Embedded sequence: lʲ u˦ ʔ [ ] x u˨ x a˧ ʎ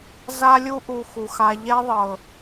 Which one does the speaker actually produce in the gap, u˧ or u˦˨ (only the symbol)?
u˧